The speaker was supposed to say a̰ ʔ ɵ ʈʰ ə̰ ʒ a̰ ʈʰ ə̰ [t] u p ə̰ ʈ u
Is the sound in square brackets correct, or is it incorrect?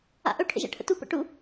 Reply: correct